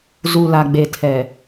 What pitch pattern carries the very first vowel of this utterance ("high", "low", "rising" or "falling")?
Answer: low